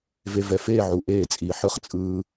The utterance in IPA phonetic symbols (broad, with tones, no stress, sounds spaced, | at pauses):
v e˨ v ɛ˨ f eː˦˨ ʕ u˨ ʔ eː˦˨ t͡sʼ iː˨ ħ ɯ˦ χ t͡sʼ ɯː˦